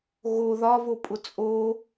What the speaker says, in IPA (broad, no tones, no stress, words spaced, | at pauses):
ɣo ðɒvo pʼʊt͡sʼo